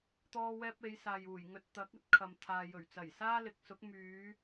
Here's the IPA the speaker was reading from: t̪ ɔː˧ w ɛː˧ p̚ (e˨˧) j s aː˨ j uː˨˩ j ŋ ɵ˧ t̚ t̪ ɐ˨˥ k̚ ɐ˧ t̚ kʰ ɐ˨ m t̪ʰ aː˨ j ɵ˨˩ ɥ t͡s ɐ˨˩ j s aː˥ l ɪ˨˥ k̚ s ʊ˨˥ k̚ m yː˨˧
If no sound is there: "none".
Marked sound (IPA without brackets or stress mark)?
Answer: e˨˧